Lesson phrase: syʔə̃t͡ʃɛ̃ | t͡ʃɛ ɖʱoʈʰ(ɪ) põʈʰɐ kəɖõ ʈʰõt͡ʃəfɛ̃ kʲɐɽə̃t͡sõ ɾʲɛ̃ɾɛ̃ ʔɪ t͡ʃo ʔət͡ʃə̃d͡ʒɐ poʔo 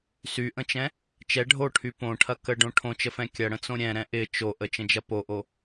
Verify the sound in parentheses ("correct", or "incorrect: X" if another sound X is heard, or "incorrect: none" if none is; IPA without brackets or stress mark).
incorrect: y